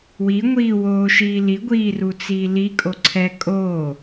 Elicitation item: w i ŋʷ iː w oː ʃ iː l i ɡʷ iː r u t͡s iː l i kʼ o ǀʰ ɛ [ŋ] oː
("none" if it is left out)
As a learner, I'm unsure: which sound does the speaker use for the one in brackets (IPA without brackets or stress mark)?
kʼ